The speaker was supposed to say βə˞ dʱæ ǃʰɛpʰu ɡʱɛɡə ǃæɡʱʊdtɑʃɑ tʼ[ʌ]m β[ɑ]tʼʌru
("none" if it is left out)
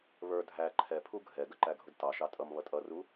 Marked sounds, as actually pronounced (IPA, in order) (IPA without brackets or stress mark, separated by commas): ʌ, ʌ